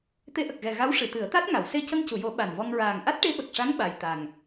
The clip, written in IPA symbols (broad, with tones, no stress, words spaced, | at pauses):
t̪e˧˥ʔə˨˩k̚ɣɛ˨˩ ɣa˧˥w ʂɨ˨˩˨t̪ɨ˨˩˦ə̯ t̪a˦˥t̚ŋa˨˩˨w se˧cə˧ŋcu˨˩˨jo˨˩˦ ɓa˨˩nvɔ˧ŋ ɹaː˨˩ŋ ʔa˦˥t̚ʈe˧˥ɓə˨˩k̚ʂa˧˥ŋ ɓa˨˩j t̪a˨˩ŋ